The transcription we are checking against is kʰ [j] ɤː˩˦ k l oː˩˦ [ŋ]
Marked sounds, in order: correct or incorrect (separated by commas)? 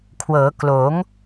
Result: incorrect, correct